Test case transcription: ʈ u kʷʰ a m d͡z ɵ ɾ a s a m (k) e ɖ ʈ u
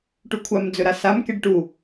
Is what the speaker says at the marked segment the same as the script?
yes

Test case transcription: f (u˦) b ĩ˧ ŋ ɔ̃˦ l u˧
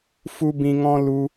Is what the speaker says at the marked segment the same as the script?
yes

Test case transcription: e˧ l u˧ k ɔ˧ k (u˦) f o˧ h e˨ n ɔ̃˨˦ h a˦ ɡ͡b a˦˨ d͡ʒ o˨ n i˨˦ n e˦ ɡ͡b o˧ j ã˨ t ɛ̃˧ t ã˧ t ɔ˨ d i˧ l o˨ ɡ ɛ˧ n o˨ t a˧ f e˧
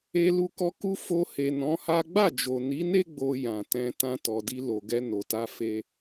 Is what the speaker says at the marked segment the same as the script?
yes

